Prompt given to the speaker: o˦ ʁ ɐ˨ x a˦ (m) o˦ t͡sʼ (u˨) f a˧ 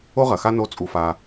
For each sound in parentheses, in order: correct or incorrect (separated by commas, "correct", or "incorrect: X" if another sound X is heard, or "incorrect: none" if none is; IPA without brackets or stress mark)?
incorrect: n, incorrect: u˧